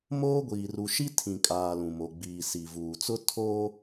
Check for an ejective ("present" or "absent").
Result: present